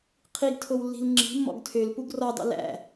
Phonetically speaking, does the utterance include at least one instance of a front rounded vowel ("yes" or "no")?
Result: yes